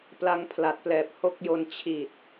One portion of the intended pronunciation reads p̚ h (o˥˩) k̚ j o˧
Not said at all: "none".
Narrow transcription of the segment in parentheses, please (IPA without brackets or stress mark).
o˥˩